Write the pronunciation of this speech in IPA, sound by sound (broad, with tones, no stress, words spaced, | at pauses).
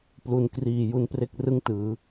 plu˩˦nkriː˨˩ ju˧npre˥˩k̚rɯ˥˩ŋtɯː˩˦